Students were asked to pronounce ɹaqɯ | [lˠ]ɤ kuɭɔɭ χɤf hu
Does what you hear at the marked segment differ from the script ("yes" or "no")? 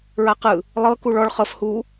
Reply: no